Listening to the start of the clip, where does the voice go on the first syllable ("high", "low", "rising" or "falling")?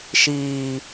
low